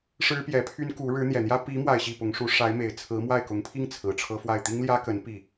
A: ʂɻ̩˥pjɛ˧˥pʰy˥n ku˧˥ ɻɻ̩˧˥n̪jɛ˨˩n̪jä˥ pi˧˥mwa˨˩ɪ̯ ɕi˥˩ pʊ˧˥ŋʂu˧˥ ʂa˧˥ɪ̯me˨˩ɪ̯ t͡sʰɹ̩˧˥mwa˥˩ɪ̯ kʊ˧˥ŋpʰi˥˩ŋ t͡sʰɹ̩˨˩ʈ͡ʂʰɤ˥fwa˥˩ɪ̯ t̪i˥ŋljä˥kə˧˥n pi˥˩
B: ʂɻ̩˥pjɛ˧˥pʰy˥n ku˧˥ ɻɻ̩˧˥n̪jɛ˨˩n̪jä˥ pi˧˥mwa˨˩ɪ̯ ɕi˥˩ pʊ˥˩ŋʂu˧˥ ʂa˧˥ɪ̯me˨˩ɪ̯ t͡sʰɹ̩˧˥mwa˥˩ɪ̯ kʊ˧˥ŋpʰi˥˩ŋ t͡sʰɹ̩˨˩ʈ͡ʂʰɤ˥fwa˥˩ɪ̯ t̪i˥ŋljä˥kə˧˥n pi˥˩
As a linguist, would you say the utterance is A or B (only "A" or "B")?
A